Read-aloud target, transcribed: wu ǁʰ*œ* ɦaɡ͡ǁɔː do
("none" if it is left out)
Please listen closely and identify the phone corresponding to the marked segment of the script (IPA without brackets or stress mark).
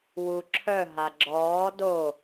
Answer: œ